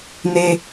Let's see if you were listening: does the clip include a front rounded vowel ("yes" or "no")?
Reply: no